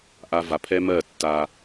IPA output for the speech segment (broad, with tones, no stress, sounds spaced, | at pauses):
ʔ a˧ v a˨ pʰ ɛ˦ m ɜ˦˨ tː a˧